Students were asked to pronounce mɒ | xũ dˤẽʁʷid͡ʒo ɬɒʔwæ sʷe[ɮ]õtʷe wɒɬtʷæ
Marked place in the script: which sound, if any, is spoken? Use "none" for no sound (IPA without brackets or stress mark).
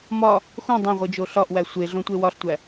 ɮ